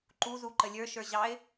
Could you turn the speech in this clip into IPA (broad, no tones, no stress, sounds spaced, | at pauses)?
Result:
ǃ u z u ǃ ə lʲ ə˞ ʃ ə˞ ʑ ɑ ɪ̯